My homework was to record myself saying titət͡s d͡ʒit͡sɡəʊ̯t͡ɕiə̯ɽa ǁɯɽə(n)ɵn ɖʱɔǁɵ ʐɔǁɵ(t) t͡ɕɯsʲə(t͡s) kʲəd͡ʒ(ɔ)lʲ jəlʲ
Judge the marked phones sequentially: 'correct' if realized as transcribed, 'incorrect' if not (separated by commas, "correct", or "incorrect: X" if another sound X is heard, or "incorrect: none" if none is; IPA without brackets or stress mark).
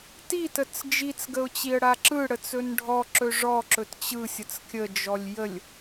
incorrect: t͡s, correct, correct, correct